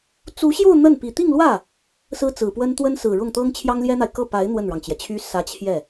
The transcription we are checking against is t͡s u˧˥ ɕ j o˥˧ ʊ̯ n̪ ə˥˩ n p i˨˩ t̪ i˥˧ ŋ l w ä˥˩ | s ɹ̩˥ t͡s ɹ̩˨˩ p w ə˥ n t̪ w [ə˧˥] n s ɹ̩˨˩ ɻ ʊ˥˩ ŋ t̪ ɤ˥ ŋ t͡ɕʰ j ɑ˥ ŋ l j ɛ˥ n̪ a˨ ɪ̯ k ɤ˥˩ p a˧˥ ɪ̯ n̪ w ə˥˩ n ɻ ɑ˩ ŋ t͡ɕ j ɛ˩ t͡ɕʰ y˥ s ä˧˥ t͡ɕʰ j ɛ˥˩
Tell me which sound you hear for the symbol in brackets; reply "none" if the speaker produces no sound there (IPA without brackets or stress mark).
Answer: ə˥